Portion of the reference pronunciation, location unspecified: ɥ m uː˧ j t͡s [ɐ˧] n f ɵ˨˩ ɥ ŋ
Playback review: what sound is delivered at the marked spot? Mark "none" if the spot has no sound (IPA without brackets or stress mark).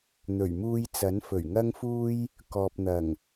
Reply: ɐ˨˥